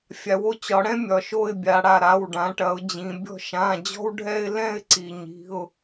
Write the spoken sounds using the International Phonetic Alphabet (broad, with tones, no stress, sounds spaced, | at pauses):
fʲ a˩˧ w o˦ t͡ɕ ɒ˩˧ ɽ ɛ̃˦ mʲ ɒ˩ ʃ o˥˨ ɪ̯ bʲ a˩˧ ɽ a˩ ɾ a˩˧˩ w ɖ ã˩˧ ʈ ɐ˩˧ ʊ̯ d͡ʑ ĩ˩˧ bʲ ɔ̤˥˨ ʃ ã˩˧˩ d͡ʑ ɔ̤˦ w ɖʱ ɛ˦ ɪ̯ l ɛ̃˥˨ ɪ̯ ǀ i˩ ɲ i̤˩˧˩ ʊ̯